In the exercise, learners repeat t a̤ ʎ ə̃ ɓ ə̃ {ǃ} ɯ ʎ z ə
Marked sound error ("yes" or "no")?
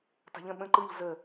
no